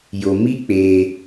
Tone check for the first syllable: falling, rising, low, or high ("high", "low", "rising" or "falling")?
low